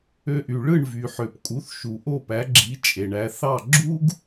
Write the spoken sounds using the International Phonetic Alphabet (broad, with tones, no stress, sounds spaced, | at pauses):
ø˧ ʔ y˩ ɭ ɯ˥˩ ɳ v y˩ ħ ø˩ p kʼ u˩˥ θ ʃ u˩ ʔ o˥˩ p æ˩˥ ɡ͡ǁ i˩˥ t͡ʃʼ e˩ ɳ æ˧ θ ɑ˥˩ ɡ͡ǁ u˥ ɡ